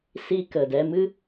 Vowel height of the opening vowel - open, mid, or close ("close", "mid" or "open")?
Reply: close